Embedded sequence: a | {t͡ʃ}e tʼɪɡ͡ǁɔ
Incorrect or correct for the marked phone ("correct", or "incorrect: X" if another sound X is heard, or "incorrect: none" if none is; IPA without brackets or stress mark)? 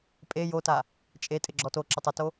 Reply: incorrect: t͡ʃʼ